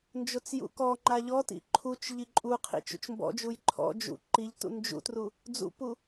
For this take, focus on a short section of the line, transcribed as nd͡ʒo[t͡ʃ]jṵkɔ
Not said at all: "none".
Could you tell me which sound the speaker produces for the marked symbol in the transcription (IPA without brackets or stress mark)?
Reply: t͡s